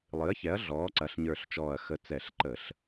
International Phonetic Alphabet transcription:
lˠ ɨ˩˥ ɐ̯ ç ɛ˩˥ ɐ̯ ɮ ɔː˩˥ ǀ ɐ˩˥ ɬ ɲ ə˞˧˩ ɬ t͡ʃ ɔː˧˩ ɐ̯ x ə˧˩ t͡s ɛ˧˩˧ ɬ ǃ ə˧˩˧ ɬ

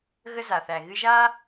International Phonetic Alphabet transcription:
ɣ ə˦ z a˨ θ æ˨ ɣ ɨ˧ ʒ a˦

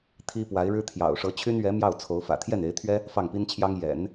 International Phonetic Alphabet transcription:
t̪ʰ i˥ p w a˧˥ ɪ̯ ɻ ɻ̩˥ t̪ʰ j ɑ̰˨˩ ʊ̯ ʂ ɤ˧˥ t͡ɕʰ y˥ n ɥ ɛ˧˥ m j ɑ˥˩ ʊ̯ t͡sʰ o˧˥ ʊ̯ f ä̰˨˩ t̪ʰ j ɛ˥˩ n e˧˥ ɪ̯ t̪ʰ ɥ ɛ˥ | f ɑ˥˩ ŋ p i˥ n t͡ɕʰ j ɑ˥ ŋ j ɛ̰˨˩˦ n

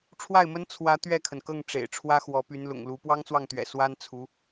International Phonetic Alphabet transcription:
ʈ͡ʂʰ w a˥˩ ɪ̯ m ə˥ n t͡sʰ w ä˧˥ t̪ ɥ ɛ˥˩ kʰ ə˩ n k ɤ˥˩ ŋ ʈ͡ʂ ḛ˨˩ ɪ̯ ʈ͡ʂʰ w ä˥ x w ɔ˧˥ p y˧˥ n l ʊ̰˨˩ ŋ l u˧˥ p w ɑ˥ ŋ t͡s w ɑ˥˩ ŋ t̪ ɥ ɛ̰˨˩ s w a˥ n t͡sʰ u˧˥

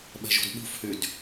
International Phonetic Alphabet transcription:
ɓ ɛ̤ ʒ ṳ d ɓ ṳ f h y d

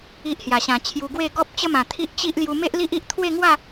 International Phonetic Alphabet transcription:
i˨ ʔ h j a˨˩ ɕ ã˨˩ t͡ɕʰ j u˧ ɡ w e˥˧ ɡ ɔ˦ p̚ t͡ɕ ə˦ m ã˨˩ t̪ʰ i˦ ʔ t͡ɕ i˦ ʔ l j u˧ m e˦ ʔ l i˦ ʔ i˦ ʔ t̪ʰ w e˥˧ ŋ w a˥˧

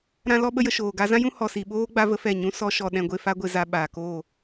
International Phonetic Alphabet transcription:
ɾ ã˧ l ɔ˧ ɓ ə˦ j ə˧ ʃ oː˨ ɡ a˧ z ã˦ j ũ˦ h ɔ˨ s i˨ ɓ oː˦ ɡ͡b a˦ v ə˦ f ɛ˦˨ ɲ ũ˦ s ɔ˦ ʃ ɔ˧ ɗ ɛ̃˧ ɡʷ e˧ f a˦ ɡʷ e˧ z a˧ ɓ aː˨ k oː˦˨

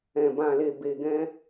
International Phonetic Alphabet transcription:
ɛ̃˨ b ã˨ l e˨ b e˨ ɡ ɛ̃˧

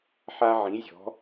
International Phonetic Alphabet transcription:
ħ a˧ ʕ ĩ˩˧ zʲ ɔ̤˩˧

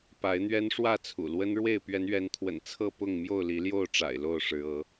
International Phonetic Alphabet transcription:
p a˨˦ ɪ̯ n̪ ɥ ɛ˦ n ʂ w ä˥˨ t͡sʰ ṵ˨˩ l w ə˦ n ɻ w e˥˨ ɪ̯ p ɥ ɛ˨˦ n ɥ ɛ˨˦ n t̪ʰ w ə̰˨˩ n t͡sʰ ɤ˥˨ p ʊ˥˨ ŋ m j o˥˨ ʊ̯ l i˨˦ l j o˥˨ ʊ̯ ʈ͡ʂ a̰˨˩ ɪ̯ l o˥˨ ʊ̯ ʂ ɻ̩˨˦ ɤ˨˦

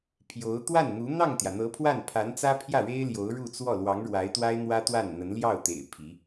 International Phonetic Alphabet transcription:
pʰ j o˧˥ ʊ̯ t̪ w a˥˩ n n̪ u˧˥ n̪ ɑ˥˩ ŋ t̪ j ä˩ n̪ ɤ˧˥ pʰ w a˥˩ n pʰ a˧˥ n t͡s ä˥ pʰ j ä˥˩ ɻ e˥ ɪ̯ l j o˧˥ ʊ̯ ɻ u˥˧ t͡s w ɔ˥˩ l w ɑ˧˥ ŋ ɻ w a˧˥ ɪ̯ t̪ w a˥ ɪ̯ n̪ w ä˥ t̪ w a˥˩ n n̪ ə˧˥ n l j ɑ˥˩ ʊ̯ t̪ ḛ˨˩ ɪ̯ pʰ i˧˥

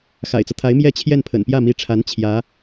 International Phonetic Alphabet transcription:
x a̰˨˩ ɪ̯ t͡s ɤ˦ t̪ʰ a˧˥ ɪ̯ m j ɛ˥˧ t͡ɕʰ j ɛ˥˩ n pʰ ə̰˨˩ n p j ä˥˩ m i˧˥ ʈ͡ʂʰ a˧˥ n t͡ɕʰ j ä˧˥

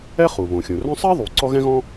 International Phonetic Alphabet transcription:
ɛ˥ χ u˩ β õ˩ xʲ õ˩ r œ̃˥ sˤ ɛ˥ ðˤ u˩ ǀ ɔ˥ ɣ ɛ̃˥ ɣ ɔ̃˥

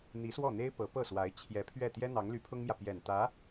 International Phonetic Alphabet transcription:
n̪ i˧˥ s w ɔ˥˩ n̪ e˥ ɪ̯ p ɤ˧˥ p ɤ˥˩ s w a˧˥ ɪ̯ t͡ɕʰ j ɛ˧˥ pʰ ɥ ɛ˥˩ t̪ j ɛ˥ n̪ ɑ˧˥ ŋ l y˧˥ pʰ ʊ˥ ŋ m j ä˨ p j ɛ˨˩ n t̪ ä˧˥

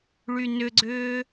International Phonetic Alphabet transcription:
ɭ y n ʏ ɡ͡ǀ ʏː

